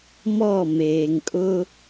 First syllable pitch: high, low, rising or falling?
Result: falling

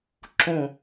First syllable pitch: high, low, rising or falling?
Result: falling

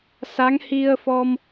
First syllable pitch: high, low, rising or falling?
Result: rising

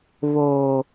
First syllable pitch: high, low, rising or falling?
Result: low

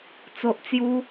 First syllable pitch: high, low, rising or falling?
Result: low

